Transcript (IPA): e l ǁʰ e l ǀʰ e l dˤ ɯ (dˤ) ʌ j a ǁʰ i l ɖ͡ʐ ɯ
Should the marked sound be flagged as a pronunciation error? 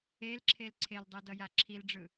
yes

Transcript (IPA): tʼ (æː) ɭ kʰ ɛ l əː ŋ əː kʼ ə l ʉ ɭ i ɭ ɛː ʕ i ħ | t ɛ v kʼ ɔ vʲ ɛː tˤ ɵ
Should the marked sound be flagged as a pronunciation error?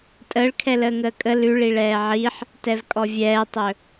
yes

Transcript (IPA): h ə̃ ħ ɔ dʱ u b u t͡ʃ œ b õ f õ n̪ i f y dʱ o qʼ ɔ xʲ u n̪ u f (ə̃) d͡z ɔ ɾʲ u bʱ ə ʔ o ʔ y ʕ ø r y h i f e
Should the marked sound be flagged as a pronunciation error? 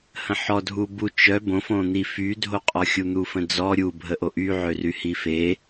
no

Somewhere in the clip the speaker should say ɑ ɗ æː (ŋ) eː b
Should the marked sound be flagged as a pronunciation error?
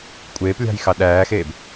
yes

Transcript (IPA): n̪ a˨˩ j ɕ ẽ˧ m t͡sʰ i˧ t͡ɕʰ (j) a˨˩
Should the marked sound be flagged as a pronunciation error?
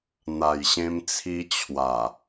yes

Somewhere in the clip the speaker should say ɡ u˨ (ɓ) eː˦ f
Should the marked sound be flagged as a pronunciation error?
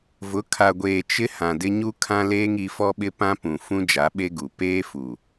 yes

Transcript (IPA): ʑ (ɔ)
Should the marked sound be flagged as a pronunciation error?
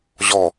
no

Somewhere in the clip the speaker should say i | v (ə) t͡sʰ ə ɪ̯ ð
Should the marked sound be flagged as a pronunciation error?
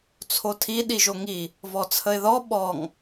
yes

